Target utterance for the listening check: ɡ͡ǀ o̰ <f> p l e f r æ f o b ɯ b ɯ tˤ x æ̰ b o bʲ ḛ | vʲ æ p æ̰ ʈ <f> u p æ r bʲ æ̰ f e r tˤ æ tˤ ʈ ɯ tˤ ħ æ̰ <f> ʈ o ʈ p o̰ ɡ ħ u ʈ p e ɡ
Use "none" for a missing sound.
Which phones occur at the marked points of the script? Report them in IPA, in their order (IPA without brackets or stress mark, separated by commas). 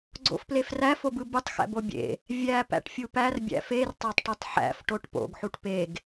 f, fʲ, f